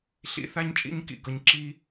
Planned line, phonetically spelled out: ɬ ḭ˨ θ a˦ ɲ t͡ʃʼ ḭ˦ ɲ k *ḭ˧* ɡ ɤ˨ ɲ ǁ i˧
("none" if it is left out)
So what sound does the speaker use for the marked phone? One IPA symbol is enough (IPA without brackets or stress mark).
ḭ˨